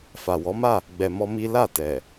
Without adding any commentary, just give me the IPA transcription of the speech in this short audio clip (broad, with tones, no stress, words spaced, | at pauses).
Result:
fa˨wɔ˨˦ma˦˨ | ɡ͡bɛ˧mɔ˦mi˦ la˦˨tɛ˨